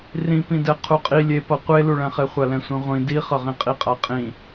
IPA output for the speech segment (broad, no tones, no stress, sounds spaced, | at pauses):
r ĩ p ĩ d ɛ qʰ u qʼ i lʲ e p ʌ qʷ e l u ɭ ɛ̃ χ e χʷ a l ɛ̃ sʷ ĩ ʁʷ ĩ d i χ ʌ ʁ ĩ qʼ i qʼ a qʼ ĩ